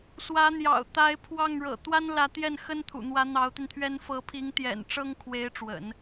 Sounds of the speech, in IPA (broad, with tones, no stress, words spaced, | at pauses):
swä˧˥n̪jɑ̰˨˩ʊ̯ t̪a˧˥ɪ̯pʰwɑ˥˩ŋɻɤ̰˨˩ t̪wa˥nlä˧˥t̪jɛ˥˩n xə˥nt̪ʰṵ˨˩n̪wä˧˥ n̪ɑ˧˥ʊ̯t̪i˧nt̪ʰɥɛ˥n fɤ˧˥pʰi˧˥ŋt̪jɛ̰˨˩n ʈ͡ʂɤ˥ŋkʰwe˧˥ɪ̯ ʈ͡ʂwə̰˨˩˦n